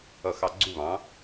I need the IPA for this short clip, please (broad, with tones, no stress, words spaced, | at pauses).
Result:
ʌ˧˩ xɑ˧˩ɡ͡ǀu˥˨βɑ̃˩˥